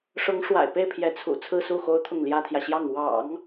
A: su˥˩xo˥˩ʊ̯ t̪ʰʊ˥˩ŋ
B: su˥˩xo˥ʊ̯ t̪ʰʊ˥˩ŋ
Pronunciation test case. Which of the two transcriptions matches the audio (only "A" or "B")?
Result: B